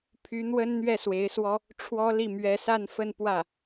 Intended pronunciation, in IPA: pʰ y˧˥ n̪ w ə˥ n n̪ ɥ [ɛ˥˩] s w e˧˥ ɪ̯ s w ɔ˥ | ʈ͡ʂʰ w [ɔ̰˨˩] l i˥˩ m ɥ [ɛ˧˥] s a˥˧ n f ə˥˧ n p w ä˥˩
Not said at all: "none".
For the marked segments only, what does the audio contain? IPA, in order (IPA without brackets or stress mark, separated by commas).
ɛ˥˩, ɔ˥, ɛ˧˥